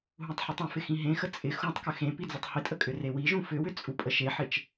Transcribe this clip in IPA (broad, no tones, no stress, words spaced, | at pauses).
ɦũtˤħʏtˤĩfɪ xĩɦẽxə t͡sʼɪ xũtˤkʏ xẽ pid͡zutˤhɪtʼə kʼʏrewiʒũ fʏwʏ t͡sʼupʼəʃeħɪt͡ʃ